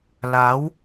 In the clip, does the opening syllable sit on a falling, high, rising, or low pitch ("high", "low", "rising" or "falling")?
rising